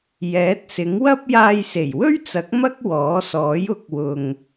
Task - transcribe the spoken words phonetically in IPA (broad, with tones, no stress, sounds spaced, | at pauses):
j ɛː˨˥ t̚ s ɪ˨˥ ŋ w ɐ˥ p̚ j aː˧ j s e˨˩ j w ɵ˥ ɥ t͡s ɐ˨˥ k̚ m ɐ˥ k̚ w ɔː˨˥ s ɔː˨˥ j ʊ˨˥ k̚ w ʊ˨ ŋ